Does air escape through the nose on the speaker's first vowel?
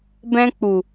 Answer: yes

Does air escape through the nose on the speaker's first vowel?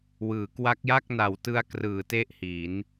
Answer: no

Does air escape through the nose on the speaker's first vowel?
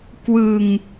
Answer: no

